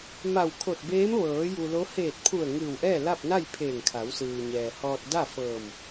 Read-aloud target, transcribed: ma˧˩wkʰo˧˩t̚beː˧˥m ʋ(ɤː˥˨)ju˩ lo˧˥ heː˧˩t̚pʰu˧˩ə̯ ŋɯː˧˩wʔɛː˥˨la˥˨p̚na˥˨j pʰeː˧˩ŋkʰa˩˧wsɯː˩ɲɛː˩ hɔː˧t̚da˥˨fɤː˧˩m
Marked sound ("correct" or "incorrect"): incorrect